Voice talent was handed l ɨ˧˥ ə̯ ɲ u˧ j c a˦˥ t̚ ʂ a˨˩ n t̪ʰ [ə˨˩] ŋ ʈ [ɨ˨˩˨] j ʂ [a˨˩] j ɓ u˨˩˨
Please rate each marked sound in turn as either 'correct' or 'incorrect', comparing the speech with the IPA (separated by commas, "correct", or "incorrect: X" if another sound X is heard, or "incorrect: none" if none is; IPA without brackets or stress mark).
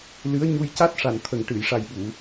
correct, correct, correct